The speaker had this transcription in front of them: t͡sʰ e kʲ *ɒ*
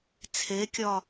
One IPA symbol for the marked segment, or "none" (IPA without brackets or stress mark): ɒ